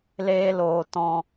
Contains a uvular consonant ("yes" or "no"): no